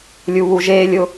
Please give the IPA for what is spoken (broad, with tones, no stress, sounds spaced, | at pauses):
lʲ u˦ β u˦ ʒ eː˦ lʲ ʊ˦